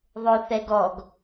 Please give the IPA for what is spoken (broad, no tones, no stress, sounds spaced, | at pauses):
ðˤ o θ ɛ ɡ ɔ ɡ